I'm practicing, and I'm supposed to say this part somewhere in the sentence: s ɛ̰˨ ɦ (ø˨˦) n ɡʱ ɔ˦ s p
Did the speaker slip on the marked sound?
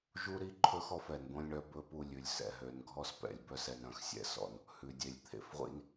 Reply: no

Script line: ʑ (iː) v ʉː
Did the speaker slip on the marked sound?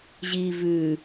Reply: no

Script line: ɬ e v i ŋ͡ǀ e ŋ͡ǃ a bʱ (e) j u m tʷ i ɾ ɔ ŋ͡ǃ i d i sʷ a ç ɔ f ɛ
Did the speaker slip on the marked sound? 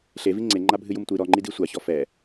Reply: yes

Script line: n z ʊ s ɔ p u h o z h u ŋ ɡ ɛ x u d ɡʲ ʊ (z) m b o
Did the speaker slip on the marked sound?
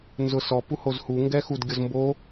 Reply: no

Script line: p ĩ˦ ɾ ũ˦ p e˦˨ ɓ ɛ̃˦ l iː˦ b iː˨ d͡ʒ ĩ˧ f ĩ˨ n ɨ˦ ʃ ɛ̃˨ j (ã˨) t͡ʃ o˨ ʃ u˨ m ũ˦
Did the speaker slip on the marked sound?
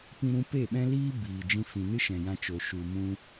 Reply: yes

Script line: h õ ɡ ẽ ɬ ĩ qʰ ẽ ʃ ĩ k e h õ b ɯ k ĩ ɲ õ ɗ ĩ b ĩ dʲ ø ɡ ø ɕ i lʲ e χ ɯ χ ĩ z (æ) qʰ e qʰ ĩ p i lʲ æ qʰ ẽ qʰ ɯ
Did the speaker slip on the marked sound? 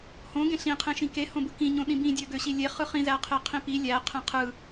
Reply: no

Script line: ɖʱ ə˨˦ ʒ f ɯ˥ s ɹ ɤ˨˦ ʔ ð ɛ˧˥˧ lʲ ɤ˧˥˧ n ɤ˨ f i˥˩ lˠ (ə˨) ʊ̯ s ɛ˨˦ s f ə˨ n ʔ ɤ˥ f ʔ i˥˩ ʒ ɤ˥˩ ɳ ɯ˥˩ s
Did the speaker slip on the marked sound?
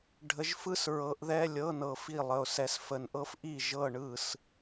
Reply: no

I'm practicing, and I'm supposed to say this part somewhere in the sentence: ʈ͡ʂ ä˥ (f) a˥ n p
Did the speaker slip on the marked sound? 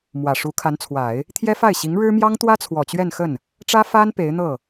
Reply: no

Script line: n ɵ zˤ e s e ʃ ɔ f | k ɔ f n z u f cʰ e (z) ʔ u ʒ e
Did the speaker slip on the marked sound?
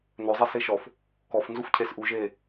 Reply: yes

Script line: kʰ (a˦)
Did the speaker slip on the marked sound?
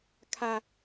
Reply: no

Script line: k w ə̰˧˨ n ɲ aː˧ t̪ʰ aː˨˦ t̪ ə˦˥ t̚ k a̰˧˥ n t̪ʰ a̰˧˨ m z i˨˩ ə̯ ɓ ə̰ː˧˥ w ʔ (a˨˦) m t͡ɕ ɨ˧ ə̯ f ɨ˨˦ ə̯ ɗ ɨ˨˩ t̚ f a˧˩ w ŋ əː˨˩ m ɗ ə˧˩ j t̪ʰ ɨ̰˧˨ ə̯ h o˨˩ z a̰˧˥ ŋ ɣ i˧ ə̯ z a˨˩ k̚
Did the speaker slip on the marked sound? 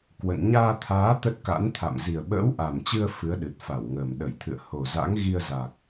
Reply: yes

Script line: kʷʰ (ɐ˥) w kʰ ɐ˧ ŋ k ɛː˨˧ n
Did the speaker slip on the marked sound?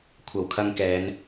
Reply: yes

